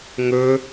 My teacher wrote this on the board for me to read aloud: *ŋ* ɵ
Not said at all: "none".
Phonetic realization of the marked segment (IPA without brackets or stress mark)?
ŋ